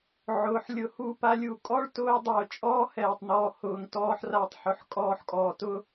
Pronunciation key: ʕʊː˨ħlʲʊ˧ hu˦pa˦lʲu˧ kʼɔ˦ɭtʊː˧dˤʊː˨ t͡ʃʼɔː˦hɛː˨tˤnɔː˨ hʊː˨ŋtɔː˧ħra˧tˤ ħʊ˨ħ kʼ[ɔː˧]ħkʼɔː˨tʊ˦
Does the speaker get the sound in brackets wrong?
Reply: no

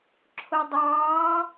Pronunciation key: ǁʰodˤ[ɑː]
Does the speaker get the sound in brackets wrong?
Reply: no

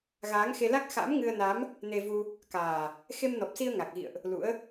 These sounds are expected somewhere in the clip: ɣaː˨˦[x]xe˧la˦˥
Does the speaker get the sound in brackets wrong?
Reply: yes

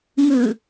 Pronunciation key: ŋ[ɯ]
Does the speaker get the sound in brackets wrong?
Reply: no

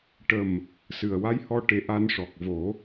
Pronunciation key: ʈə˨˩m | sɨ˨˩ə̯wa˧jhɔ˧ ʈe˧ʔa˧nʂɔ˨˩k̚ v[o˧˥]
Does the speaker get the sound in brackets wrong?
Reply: yes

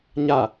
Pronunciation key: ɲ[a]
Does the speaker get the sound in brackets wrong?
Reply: no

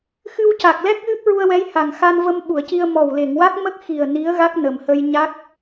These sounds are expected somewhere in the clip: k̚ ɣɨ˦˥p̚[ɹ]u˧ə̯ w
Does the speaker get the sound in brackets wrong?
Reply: no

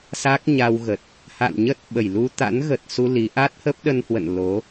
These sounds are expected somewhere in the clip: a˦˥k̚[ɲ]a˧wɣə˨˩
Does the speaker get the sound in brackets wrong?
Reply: no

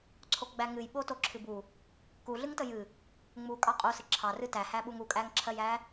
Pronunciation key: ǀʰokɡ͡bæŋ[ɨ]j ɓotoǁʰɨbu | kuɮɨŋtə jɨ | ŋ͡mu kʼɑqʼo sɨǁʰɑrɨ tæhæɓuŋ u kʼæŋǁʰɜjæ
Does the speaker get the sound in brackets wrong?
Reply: no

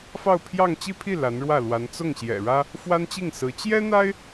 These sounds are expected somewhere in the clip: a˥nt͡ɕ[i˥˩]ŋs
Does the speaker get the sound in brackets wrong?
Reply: no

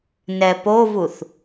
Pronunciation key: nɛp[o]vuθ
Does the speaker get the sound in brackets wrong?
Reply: no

